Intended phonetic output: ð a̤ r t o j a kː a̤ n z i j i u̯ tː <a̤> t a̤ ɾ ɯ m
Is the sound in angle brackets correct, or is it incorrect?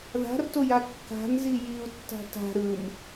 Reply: correct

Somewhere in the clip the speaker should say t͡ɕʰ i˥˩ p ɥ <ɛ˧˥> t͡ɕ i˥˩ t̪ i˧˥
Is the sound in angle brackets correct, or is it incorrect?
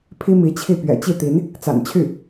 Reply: incorrect: ɛ̰˨˩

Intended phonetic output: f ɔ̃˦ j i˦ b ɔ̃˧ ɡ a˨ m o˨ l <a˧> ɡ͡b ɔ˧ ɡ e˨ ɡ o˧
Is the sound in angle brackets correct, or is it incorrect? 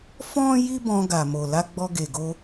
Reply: correct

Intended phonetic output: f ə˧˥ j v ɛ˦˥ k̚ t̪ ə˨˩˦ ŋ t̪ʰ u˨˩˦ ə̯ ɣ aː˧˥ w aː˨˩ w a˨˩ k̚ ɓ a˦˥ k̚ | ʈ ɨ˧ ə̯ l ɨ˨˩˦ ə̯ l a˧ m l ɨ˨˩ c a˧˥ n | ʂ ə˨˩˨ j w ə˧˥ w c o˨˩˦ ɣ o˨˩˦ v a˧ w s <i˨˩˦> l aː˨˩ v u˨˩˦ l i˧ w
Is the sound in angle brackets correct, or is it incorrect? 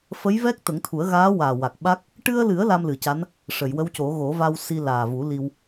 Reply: incorrect: i˧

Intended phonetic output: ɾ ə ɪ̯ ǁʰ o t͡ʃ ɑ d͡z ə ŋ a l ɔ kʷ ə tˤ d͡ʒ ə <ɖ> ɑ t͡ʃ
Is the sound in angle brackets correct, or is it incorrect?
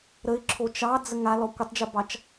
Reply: incorrect: b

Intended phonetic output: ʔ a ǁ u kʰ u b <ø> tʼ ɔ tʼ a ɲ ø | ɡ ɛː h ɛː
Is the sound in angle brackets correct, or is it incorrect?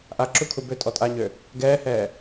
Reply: correct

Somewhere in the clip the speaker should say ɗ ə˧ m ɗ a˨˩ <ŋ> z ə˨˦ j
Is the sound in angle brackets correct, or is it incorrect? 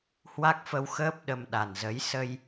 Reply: incorrect: n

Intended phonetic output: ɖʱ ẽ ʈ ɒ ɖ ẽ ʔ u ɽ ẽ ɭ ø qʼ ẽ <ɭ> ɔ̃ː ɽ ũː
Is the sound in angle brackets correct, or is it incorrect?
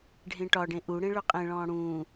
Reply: correct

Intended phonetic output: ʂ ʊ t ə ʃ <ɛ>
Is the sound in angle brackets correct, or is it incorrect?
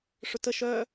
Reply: incorrect: œ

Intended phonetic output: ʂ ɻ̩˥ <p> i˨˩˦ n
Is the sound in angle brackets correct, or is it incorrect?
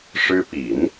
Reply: correct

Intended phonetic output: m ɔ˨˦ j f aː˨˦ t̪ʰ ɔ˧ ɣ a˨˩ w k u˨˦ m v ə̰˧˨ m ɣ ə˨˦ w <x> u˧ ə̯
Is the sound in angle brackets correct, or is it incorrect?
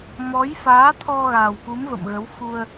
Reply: correct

